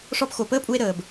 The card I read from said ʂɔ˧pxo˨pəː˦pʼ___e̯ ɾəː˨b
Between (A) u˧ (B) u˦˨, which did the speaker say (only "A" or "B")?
A